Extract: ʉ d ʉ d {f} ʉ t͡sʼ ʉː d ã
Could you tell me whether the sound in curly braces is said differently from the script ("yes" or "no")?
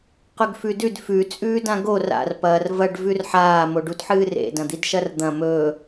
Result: no